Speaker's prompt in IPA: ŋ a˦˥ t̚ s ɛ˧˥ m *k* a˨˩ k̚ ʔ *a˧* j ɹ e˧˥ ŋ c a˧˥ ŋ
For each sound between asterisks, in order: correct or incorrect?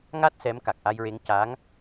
correct, correct

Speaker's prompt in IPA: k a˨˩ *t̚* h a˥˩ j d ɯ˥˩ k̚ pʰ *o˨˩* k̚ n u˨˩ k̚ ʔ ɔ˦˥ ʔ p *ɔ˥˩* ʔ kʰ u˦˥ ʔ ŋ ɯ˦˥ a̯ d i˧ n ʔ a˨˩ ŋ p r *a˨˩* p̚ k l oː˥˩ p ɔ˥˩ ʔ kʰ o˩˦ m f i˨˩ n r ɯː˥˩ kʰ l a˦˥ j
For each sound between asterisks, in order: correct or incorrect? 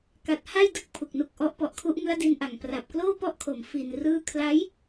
correct, incorrect: u˨˩, incorrect: ɔ˨˩, correct

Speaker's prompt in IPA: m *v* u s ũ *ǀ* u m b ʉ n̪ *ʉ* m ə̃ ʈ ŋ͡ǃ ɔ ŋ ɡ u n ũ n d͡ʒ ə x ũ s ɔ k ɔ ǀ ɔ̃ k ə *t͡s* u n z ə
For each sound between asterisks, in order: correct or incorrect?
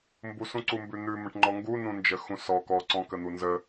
incorrect: b, correct, correct, incorrect: n̪

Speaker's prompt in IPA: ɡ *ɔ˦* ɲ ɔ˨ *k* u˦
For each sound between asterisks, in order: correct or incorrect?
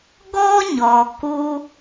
correct, correct

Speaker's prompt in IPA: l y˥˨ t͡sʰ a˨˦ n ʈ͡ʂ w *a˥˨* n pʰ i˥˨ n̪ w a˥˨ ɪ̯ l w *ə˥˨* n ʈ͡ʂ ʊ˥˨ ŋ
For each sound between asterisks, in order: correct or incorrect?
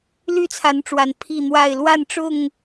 incorrect: a˨˩, incorrect: a˥˨

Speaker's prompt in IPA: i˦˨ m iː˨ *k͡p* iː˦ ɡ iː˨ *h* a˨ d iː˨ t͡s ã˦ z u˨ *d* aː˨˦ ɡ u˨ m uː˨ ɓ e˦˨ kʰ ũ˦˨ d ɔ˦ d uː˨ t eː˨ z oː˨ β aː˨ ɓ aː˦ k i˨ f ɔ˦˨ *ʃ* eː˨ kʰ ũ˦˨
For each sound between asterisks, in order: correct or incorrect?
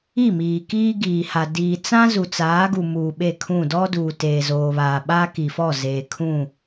incorrect: k, correct, incorrect: t͡s, incorrect: z

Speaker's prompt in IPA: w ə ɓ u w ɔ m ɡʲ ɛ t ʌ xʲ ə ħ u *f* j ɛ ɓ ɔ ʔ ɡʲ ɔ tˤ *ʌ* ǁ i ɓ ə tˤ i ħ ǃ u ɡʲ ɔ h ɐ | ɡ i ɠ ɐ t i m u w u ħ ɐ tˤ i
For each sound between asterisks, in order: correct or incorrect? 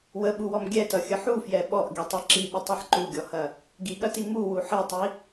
correct, correct

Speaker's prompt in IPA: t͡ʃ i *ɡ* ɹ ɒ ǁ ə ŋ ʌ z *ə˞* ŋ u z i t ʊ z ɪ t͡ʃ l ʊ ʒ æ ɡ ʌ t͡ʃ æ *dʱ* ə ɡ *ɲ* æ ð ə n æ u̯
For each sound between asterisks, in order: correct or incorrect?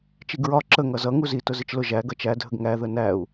correct, incorrect: ʌ, correct, incorrect: ŋ

